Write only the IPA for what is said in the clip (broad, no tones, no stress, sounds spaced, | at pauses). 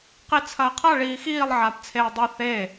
q i t͡sʰ ɐː qʰ a ɭ iː x iː lˠ ʕ aː p t͡sʰ eː dˤ e θ eː